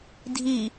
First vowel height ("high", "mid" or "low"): high